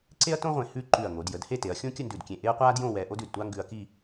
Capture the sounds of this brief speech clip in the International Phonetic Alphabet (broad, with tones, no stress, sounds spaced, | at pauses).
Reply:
ǀ e˥ ɐ̯ t õ˥ ʁʷ ẽ˧˩ h ʉ˥˧ ǃ ʉ˧˩ ɐ̯ ŋ o˩˧ d j ə˩˧ d h e˥˧ t e˩˧ ɐ̯ xʲ õ˥ kʲ ə˥˧ n d ʉ˧˩ d kʲ ẽ˧˩ ʔ e˥ ɐ̯ qʷ aː˥ d j õ˥˧ w ɛː˧ ʔ o˥ d ʉ˧˩ d tʷ a˥ ŋ ɡ ʉ˧ ɐ̯ k i˥˧